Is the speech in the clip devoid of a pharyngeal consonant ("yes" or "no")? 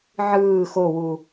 no